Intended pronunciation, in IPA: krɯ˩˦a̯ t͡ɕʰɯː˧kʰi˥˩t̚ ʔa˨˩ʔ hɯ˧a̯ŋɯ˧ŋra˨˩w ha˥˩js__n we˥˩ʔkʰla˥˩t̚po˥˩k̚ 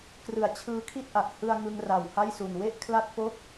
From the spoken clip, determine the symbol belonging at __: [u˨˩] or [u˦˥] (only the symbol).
u˨˩